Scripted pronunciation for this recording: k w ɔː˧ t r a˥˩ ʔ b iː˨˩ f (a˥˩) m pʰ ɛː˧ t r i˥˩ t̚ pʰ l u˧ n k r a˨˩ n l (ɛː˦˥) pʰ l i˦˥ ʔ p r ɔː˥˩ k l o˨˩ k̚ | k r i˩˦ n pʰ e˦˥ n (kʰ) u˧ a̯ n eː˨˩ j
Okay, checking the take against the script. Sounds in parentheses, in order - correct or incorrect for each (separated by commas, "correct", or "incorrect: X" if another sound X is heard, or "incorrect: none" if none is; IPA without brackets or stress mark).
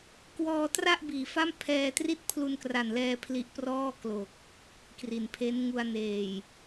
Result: correct, incorrect: ɛː˧, incorrect: ŋ